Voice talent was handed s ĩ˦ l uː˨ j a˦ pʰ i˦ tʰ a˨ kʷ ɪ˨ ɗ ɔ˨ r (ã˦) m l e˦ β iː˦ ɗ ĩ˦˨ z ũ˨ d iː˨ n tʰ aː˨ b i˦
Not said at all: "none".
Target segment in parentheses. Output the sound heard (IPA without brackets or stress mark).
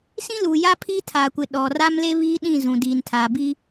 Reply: a˦